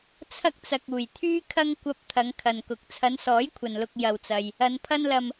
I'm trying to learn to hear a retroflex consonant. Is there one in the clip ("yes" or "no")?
no